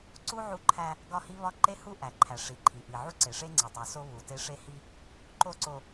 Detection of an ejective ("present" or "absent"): absent